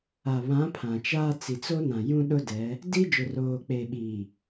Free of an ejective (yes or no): yes